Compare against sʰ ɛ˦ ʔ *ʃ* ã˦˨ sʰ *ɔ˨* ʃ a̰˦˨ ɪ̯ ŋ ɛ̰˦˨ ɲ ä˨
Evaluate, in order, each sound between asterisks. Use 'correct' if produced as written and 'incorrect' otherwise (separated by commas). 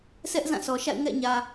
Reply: incorrect, correct